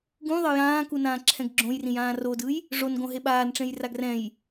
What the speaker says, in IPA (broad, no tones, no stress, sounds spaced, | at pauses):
ɡ ũ ðˤ ʌ j ãː k u n ãː ǁʰ ɛ̃ ɡ ɡ͡ǁ õ j r ĩ j ãː r o d ɯ j | ʐ o n ɡ õ ɦ e ɓ aː n ʈ͡ʂ ẽ j r a ɡ r ɛ̃ j